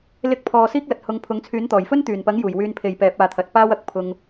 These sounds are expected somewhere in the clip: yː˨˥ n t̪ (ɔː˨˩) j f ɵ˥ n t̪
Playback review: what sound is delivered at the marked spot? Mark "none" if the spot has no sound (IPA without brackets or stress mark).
ɔː˨˩